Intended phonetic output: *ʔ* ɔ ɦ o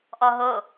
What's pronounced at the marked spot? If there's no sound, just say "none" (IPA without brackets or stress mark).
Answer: ʔ